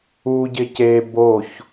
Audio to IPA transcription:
u ɟ ɪ c e b o ç

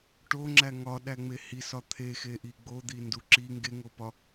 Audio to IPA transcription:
ʈ o ŋ͡ǁ æ ŋ ɒ ɗ æ ŋ͡m e h i s ɒ t̪ʰ e x e ʔ i ɡ͡b o d̪ i n d u ǁ i ŋ ɡ e ŋ o p ɒ

